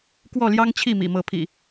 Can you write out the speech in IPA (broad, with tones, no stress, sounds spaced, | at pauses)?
k w ɔ˥˨ l j ɑ˦ ŋ t͡ɕʰ i˥˨ m ḭ˨˩ m ɤ˨˦ pʰ ḭ˨˩